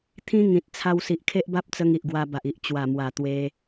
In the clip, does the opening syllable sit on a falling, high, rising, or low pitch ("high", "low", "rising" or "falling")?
high